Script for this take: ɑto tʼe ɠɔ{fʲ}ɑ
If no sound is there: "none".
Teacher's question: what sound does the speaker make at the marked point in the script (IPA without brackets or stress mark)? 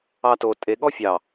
fʲ